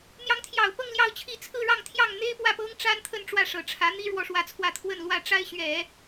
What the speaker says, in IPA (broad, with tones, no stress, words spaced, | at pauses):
n̪jɑ˧˥ŋt̪ʰjɑ˨˩ʊ̯pɤ˥˧ŋ ljɑ˥˧ʊ̯t͡ɕʰi˥˧ t͡sʰɹ̩˥˧ɻɑ˥˧ŋt̪ʰjɑ˥˩ŋ n̪e˥ɪ̯pwä˥˩pɤ˥ŋ ʈ͡ʂa˥nt̪ʰə˥˧n ʈ͡ʂwä˥˩ʂɤ˨˩ʈ͡ʂʰä˧˥n̪i˥ ɻwɔ˧˥ʂwä˧˥t͡sʰwä˥˧ t̪ʰwə˥˧nlwä˥˩ʈ͡ʂa˥ɪ̯ ɕɥɛ˨˩˦